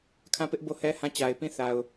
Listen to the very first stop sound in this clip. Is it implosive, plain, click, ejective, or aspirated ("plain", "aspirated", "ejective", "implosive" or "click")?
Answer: aspirated